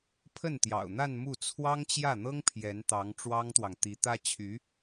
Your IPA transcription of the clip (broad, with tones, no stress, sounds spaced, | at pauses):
pʰ ə˥˩ n t̪ j ɑ̰˨˩ ʊ̯ n̪ a˥˧ n m u˥˩ t͡sʰ w ɑ˥ ŋ t͡ɕ j ä˥˩ n̪ ɤ˥ ŋ pʰ j ɛ˧˥ n t̪ ɑ˧˥ ŋ ʈ͡ʂ w ɑ˥ ŋ t̪ w ɑ˨ ŋ t̪ i˧˥ t̪ ä˥ t͡ɕʰ y˧˥